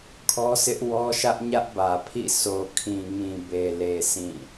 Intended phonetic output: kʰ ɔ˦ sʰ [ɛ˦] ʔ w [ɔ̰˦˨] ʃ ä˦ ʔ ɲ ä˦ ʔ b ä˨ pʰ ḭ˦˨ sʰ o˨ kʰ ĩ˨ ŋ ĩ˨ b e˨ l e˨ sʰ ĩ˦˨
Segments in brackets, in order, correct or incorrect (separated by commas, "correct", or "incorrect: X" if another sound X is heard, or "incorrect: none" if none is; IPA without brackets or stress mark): incorrect: ɪ˦, incorrect: ɔ˦